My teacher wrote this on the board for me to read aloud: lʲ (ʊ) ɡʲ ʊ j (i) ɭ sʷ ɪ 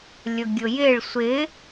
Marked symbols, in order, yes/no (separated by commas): yes, no